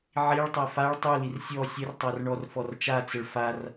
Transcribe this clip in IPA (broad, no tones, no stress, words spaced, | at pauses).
ʕiɭtˤa faɭ tˤulir sʲɔ sʲərtˤar ɳɔrfɔrt͡ʃat͡səɭ far